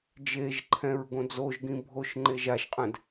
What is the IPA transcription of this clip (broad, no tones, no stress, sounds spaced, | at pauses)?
d͡ʒ e ʒ ǃʰ ɛ̃ ɹ ɡ õ d͡z o ʒ ɡ ĩ bʱ o ʃ ŋ͡ǃ e ʒ a ʃ qʼ ɛ̃ d